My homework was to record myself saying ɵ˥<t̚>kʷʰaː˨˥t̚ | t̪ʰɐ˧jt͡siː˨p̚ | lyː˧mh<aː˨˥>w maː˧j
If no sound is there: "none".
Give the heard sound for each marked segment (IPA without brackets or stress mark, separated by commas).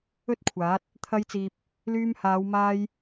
t̚, aː˨˧